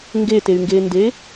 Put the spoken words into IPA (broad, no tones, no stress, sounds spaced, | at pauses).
ŋ ɡ e t e y̯ ŋ ɡ e n d e